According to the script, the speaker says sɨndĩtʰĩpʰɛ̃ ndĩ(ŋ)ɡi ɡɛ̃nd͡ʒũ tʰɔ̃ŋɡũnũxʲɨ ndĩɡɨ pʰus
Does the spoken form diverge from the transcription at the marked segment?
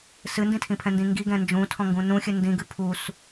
no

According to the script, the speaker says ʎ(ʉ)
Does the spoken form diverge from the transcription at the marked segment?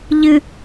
yes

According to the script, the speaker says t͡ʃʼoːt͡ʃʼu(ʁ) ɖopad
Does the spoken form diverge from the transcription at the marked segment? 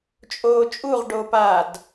no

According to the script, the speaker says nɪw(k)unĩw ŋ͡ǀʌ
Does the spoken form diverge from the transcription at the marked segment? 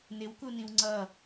no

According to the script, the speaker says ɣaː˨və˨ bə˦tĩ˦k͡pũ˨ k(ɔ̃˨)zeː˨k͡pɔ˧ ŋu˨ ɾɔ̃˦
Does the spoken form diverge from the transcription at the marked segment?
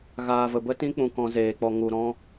yes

